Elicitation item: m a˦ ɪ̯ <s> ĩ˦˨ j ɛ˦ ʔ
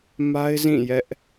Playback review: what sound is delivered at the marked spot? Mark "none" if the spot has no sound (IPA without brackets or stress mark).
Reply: z